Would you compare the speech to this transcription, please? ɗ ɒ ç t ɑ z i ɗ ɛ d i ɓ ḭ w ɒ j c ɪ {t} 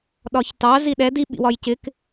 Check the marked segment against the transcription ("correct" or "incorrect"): incorrect